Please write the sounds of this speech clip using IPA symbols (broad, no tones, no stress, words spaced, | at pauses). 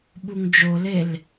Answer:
ɓuŋd͡ʒolel